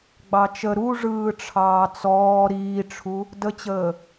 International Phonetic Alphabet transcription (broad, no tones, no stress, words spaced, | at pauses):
ɡ͡bɑt͡ʃə ɾu ʐɯːʈ͡ʂʰɑːt͡sɔː ɾiːʈ͡ʂʰu | dət͡ɕəː